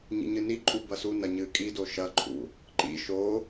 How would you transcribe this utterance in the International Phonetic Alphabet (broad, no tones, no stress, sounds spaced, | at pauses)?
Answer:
ɲ ḭ ɲ ɨ n i ǃʼ u b ɐ s u n ɐ ɲ ɨ kʼ i d o ʃ ɐ ǃʰ ṵ | ǃ ḭ ʃ o